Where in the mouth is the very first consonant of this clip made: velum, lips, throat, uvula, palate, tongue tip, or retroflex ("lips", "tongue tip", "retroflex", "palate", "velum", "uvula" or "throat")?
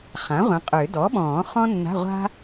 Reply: uvula